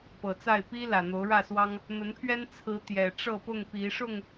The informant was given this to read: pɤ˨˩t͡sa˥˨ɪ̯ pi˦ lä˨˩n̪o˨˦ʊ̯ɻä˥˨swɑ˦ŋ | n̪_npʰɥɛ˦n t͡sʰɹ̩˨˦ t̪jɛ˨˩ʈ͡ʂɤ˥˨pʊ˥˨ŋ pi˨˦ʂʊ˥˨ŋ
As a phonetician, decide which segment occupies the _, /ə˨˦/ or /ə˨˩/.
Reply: ə˨˦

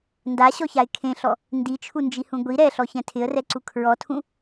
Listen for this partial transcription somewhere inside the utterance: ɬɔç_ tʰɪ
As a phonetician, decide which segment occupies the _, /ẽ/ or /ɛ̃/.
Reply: ɛ̃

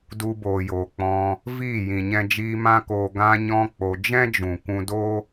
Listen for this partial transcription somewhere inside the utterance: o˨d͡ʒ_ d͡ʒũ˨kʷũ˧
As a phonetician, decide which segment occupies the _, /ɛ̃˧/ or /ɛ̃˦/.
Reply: ɛ̃˦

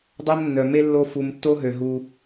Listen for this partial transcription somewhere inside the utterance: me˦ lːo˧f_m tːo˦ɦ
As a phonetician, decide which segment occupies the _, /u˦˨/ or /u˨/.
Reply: u˨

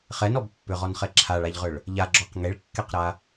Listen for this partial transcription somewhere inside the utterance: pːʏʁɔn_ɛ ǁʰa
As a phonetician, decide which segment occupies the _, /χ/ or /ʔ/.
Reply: χ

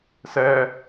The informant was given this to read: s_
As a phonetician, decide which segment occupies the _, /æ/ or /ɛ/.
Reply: ɛ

